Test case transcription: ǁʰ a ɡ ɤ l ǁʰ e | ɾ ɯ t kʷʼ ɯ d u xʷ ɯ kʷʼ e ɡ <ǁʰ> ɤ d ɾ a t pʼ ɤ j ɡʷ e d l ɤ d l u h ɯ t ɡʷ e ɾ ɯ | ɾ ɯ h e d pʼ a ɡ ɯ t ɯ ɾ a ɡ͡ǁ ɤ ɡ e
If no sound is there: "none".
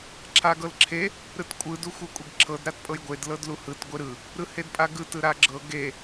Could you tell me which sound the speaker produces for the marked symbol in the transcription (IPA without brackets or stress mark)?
ǁʰ